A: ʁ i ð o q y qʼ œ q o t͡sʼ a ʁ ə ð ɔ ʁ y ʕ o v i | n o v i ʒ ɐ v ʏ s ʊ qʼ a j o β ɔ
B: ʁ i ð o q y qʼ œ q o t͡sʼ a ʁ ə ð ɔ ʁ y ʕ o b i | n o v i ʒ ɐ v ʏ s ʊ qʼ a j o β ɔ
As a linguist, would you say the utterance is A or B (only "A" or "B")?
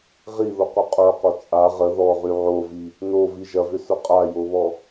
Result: A